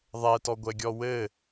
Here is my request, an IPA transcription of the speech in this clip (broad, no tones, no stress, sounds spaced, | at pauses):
ðˤ ɛ t ɔ ɡʷ ɛ ɡʲ ɔ w ɘ